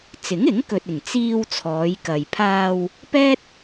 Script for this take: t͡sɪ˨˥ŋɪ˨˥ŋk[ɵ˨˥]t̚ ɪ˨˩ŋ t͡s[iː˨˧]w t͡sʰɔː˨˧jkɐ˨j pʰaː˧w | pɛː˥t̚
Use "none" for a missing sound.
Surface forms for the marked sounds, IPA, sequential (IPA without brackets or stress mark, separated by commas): ɵ˨, iː˧